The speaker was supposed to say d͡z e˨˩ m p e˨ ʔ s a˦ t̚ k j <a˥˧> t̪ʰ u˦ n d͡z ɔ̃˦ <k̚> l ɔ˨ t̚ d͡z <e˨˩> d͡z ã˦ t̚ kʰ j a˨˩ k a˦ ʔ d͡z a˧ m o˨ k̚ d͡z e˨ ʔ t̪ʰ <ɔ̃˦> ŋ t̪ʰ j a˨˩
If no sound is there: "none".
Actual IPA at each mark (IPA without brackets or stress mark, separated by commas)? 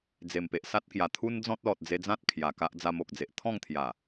a˨˩, t̚, e˧, ɔ̃˥˧